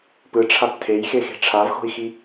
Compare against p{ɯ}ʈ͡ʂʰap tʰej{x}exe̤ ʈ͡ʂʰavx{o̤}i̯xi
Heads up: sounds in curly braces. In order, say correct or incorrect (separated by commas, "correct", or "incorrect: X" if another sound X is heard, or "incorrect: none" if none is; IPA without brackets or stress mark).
correct, correct, correct